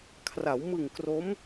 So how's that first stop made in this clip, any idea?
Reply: aspirated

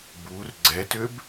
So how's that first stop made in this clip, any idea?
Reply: plain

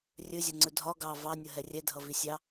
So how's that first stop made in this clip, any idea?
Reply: click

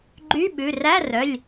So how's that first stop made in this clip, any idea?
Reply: click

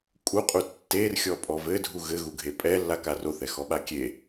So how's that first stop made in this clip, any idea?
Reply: ejective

